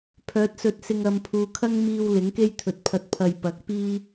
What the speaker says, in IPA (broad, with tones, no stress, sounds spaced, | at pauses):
pʰ œː˨˥ t̚ s ɵ˧ t̚ s ɪ˧ ŋ ɐ˨ m pʰ uː˨ kʰ ɐ˥ ŋ m iː˧ w l ɪ˨˥ ŋ k e˥ j t̪ʰ ɵ˨ t̚ pʰ ɐ˧ t̚ pʰ ɐ˨ j p ɐ˨˥ k̚ p iː˥